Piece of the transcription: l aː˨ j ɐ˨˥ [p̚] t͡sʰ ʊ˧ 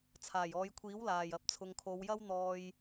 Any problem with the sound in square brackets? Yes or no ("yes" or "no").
no